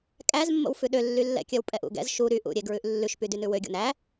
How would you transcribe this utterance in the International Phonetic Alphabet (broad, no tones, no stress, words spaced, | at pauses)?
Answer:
kʼæzmːo̰wfʉ ɗølːylːɛ̰kʲœw pʼɛʔṵɡɛ̰z ʃu ɾyʔṵɾʲeɡɹʉʔ lːʉʃpydy nʉwøɡʲo̰n æ